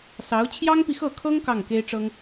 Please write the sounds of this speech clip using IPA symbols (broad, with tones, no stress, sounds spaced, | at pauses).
s ɑ˧˥ ʊ̯ t͡ɕʰ j ɑ˥ ŋ p i˨ x ɤ˥˩ kʰ ɤ˥ ŋ k ɑ˥˩ ŋ k e˥ ɪ̯ ʈ͡ʂ ɤ˥ ŋ